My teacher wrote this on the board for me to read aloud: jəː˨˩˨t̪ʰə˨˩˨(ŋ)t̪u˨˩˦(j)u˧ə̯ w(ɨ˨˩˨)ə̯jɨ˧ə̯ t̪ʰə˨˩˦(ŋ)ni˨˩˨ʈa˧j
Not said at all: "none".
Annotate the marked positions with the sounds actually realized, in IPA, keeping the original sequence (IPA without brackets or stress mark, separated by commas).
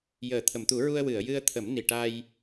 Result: m, ɹ, ɨ˨˩˨, m